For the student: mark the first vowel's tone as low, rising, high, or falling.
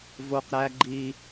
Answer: high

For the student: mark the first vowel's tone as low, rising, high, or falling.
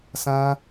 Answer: high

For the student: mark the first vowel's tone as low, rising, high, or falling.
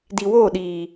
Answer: low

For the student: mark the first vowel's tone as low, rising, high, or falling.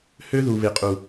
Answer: high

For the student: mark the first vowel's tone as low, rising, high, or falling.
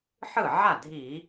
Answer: falling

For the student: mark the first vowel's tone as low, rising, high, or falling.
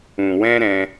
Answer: low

